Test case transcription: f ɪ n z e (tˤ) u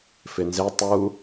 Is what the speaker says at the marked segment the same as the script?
yes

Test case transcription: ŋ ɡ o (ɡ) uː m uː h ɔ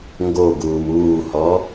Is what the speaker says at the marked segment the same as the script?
yes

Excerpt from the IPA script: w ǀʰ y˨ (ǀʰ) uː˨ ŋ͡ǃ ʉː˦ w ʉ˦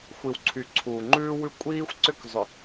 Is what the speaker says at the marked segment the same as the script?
yes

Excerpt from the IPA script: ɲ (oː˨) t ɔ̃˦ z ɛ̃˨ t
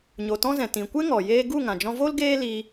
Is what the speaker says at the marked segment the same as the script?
no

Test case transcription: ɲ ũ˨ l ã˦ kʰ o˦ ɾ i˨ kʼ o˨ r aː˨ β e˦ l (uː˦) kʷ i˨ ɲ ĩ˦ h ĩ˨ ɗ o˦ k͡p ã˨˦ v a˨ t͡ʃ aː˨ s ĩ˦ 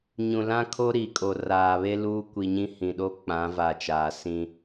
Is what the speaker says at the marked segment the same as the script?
yes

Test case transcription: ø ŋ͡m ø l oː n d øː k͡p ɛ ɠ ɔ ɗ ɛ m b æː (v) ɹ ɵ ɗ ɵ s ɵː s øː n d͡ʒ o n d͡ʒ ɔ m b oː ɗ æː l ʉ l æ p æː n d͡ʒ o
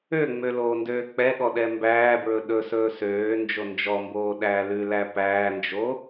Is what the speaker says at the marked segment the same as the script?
no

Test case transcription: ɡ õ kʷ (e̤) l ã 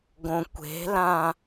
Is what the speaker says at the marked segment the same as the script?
yes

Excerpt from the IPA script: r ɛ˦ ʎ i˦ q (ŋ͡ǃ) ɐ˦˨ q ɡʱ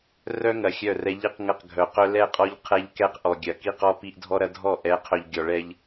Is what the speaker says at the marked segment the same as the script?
no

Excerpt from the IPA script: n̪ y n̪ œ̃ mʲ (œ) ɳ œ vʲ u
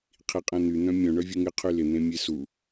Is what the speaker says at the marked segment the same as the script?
no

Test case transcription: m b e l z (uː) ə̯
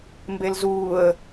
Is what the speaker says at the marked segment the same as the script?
yes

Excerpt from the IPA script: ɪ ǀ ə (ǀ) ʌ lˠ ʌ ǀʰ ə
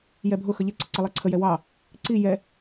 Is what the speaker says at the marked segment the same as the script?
yes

